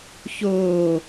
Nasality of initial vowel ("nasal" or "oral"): oral